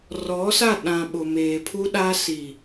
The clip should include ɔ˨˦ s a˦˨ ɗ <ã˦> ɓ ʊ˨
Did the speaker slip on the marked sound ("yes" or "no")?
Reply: yes